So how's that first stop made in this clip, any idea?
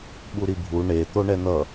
implosive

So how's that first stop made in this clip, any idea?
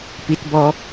plain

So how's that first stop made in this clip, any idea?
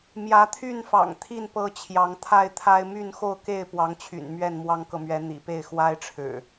aspirated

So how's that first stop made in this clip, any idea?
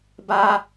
plain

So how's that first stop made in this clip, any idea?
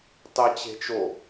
plain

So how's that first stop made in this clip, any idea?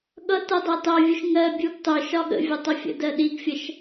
implosive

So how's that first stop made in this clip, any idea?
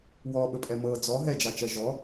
implosive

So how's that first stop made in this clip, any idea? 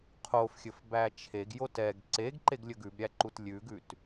aspirated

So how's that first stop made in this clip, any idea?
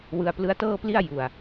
plain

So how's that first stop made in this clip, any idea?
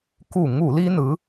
plain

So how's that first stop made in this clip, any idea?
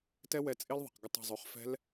plain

